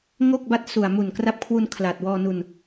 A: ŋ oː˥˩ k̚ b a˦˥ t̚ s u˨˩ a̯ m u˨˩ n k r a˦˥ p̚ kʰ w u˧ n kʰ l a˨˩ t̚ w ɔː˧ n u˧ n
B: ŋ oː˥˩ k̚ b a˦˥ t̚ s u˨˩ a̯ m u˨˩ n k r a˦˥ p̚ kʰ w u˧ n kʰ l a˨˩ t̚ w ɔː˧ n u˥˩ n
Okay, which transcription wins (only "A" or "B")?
A